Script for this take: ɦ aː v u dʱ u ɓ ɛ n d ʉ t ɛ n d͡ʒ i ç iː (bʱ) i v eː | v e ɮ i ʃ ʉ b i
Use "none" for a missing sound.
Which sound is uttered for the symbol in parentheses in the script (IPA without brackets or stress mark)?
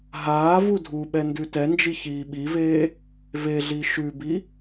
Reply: ɓ